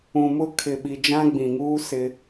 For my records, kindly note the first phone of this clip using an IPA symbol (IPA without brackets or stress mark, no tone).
ũ